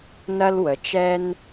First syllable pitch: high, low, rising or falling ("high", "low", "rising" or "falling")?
high